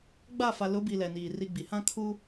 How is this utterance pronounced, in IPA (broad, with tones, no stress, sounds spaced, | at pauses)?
ɡ͡b a˦˨ f a˨ l ʊ˨˦ b i˨ l ɛ˨ n iː˨ r i˦ ɡ͡b i˨ h ã˦ kʰ u˦